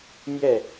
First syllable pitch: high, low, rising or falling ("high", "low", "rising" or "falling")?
falling